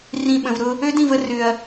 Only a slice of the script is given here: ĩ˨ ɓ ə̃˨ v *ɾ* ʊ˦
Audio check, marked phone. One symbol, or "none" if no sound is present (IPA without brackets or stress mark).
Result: ɾ